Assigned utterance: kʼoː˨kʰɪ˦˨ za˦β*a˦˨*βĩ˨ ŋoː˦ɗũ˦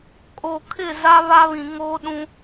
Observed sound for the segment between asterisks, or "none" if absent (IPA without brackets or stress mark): a˦